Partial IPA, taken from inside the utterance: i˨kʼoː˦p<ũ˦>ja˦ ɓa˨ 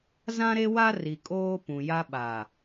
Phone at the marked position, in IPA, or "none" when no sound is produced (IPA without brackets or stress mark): ũ˨